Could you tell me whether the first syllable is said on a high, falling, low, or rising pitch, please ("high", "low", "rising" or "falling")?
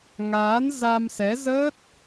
rising